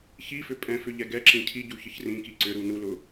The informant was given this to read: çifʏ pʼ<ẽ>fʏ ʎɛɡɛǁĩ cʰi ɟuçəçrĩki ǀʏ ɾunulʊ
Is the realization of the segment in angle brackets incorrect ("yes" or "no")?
yes